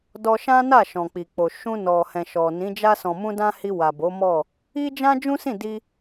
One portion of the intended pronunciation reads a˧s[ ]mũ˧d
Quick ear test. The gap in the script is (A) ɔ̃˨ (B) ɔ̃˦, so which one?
A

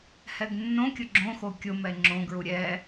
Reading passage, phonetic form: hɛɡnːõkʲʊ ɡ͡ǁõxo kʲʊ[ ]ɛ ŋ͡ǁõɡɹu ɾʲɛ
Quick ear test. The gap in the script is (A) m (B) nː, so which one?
A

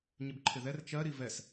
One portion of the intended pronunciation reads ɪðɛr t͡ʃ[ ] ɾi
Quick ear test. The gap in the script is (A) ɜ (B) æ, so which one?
A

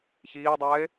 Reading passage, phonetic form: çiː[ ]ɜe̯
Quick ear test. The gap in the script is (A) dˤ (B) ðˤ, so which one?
A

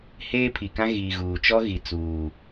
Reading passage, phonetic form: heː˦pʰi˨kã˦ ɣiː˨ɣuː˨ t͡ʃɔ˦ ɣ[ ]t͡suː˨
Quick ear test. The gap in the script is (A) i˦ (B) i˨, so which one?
B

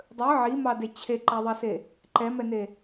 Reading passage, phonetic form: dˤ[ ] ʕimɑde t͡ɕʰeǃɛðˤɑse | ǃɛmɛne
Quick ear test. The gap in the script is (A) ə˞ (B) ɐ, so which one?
A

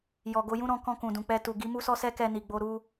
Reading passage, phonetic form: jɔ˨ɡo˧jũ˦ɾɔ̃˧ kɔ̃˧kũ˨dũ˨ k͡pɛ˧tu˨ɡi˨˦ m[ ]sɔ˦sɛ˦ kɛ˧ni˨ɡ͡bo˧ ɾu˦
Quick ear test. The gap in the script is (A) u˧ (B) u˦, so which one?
B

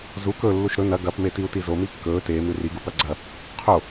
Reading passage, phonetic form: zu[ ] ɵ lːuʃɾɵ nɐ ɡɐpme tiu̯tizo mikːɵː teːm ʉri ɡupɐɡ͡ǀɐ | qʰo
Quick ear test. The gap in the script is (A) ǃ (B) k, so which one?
B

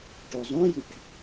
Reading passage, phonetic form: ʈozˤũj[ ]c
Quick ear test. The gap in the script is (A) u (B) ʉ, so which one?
A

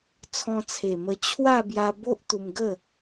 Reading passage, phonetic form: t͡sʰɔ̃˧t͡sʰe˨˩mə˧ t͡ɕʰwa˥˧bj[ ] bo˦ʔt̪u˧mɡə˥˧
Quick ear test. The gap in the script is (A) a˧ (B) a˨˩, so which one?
A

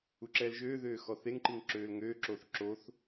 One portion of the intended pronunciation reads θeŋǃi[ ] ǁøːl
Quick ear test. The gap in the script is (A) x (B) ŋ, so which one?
B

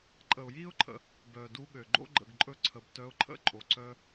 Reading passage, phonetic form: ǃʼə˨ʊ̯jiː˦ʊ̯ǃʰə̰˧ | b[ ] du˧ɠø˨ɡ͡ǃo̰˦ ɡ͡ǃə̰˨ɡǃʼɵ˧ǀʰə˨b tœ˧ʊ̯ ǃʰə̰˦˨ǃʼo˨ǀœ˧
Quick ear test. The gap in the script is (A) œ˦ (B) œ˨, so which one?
B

